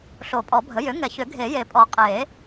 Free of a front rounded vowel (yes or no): no